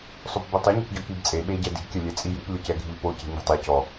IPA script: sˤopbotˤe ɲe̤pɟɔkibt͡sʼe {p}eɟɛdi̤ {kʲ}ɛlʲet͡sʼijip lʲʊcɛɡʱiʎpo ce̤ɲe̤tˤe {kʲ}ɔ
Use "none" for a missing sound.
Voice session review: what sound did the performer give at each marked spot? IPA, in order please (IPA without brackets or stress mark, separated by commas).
ɓ, kʲ, c